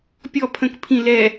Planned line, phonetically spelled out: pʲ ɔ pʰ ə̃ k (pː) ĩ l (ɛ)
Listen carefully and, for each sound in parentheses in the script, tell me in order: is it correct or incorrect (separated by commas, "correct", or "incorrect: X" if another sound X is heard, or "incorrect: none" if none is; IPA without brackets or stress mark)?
incorrect: pʰ, correct